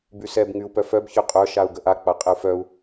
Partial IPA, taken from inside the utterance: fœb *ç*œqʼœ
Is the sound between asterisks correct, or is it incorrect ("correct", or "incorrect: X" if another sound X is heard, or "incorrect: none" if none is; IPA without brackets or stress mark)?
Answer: correct